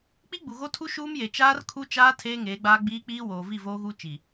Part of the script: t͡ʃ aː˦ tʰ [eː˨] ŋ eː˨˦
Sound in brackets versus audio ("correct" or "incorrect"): incorrect